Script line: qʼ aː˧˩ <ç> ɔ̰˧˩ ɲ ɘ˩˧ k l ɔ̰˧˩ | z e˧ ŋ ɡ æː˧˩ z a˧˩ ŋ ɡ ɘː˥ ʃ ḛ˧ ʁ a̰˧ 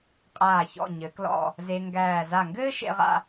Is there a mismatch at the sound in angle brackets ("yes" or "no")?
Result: no